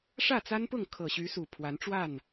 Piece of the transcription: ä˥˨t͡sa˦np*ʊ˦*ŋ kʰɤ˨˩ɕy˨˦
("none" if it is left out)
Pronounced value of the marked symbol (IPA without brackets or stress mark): ʊ˥˨